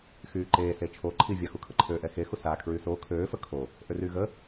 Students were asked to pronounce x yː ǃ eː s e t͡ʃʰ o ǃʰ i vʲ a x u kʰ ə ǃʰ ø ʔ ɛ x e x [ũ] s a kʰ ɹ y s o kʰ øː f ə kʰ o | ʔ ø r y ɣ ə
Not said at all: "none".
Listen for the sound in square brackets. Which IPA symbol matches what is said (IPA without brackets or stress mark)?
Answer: u